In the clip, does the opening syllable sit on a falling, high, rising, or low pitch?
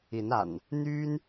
rising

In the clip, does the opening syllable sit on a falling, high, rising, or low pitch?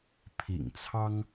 low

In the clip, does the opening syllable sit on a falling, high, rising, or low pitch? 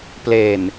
low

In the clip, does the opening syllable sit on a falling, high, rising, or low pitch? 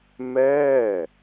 falling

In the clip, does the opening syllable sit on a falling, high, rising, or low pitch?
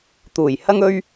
low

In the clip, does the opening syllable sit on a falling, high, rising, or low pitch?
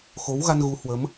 rising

